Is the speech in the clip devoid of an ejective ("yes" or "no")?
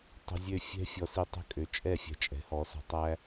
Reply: no